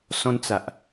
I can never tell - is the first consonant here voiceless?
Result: yes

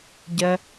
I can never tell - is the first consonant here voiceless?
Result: no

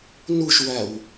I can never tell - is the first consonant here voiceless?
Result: no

